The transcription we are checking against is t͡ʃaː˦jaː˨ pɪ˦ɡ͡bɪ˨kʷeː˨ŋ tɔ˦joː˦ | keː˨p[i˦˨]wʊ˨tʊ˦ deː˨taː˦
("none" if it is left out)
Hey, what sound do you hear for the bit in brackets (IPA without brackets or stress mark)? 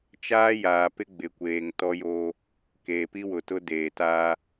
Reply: i˦